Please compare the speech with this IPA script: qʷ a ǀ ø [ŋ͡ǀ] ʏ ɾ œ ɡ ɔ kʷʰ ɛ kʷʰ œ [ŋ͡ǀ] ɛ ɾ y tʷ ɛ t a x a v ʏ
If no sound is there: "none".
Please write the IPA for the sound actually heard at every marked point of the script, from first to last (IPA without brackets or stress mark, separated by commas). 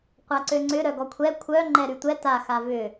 ŋ͡ǀ, ŋ͡ǃ